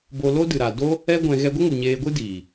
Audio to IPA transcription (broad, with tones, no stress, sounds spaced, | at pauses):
b o˧ l o˦ d ɨ˨ ɾ a˨ d o˦ | ɛ˦ ɡʷ ɛ̃˧ ɣ ɛ˧ ɡʷ ə˦ ŋ u˨ ɲ eː˧ ɡʷ ɨ˦ d iː˨